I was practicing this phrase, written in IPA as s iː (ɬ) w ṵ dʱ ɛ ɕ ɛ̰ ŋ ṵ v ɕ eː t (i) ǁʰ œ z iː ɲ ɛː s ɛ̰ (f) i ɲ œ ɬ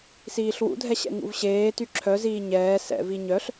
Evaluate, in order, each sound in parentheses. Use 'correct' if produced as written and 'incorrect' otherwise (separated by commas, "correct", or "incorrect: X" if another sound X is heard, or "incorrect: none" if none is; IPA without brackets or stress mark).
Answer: correct, incorrect: y, incorrect: v